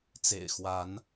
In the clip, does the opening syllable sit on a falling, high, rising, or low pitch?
low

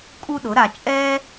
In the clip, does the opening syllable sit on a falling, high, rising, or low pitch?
high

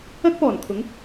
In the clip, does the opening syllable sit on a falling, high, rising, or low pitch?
high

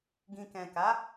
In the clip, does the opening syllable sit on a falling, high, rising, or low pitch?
low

